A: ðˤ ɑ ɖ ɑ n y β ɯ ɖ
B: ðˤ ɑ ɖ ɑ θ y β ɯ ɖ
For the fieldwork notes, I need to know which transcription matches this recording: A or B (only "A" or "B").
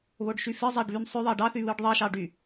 B